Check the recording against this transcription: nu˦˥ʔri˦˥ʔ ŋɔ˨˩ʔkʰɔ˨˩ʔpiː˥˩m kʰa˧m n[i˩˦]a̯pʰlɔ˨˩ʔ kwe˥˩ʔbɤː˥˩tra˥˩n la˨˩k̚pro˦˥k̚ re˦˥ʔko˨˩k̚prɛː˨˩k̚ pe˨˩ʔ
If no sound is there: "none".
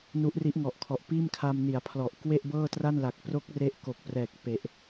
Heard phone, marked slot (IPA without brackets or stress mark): i˩˦